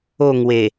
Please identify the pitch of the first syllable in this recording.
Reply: falling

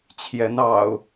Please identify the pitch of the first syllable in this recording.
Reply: rising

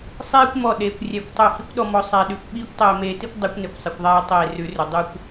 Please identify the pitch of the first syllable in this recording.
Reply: high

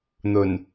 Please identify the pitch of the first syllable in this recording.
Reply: low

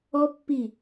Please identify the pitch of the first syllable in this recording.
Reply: high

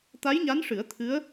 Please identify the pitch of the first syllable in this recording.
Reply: rising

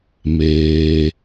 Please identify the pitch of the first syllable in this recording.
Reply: low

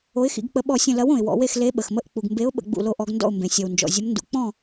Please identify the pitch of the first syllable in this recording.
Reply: rising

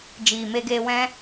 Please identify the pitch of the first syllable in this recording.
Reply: low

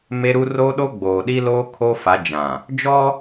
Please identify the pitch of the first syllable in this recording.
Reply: high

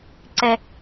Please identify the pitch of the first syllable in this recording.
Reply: high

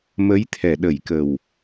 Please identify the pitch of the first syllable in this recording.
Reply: rising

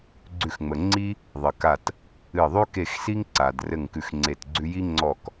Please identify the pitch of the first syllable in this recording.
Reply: falling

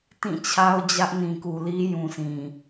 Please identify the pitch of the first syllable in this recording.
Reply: falling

